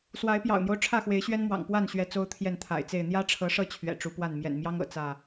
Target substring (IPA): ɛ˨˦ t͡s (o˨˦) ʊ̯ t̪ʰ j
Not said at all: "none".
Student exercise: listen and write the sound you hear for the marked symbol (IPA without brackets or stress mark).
o˦